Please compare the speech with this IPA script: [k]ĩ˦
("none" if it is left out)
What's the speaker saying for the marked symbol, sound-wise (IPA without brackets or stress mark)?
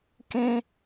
k